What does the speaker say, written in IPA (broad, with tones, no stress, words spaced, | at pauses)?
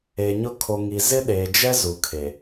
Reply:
e˨ɲʊ˦kʰo˨ŋi˨ zɪ˦ɗeː˨d͡ʒɛ˦ zu˨kʰe˨